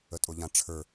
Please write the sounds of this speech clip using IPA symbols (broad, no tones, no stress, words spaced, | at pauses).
ətʼʊʎãʈ͡ʂʰə˞